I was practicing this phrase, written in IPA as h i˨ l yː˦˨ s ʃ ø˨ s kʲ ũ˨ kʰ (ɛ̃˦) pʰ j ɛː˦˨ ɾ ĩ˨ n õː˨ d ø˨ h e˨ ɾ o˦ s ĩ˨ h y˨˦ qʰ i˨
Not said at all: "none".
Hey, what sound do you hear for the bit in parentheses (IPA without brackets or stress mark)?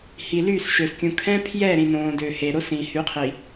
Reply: ɛ̃˦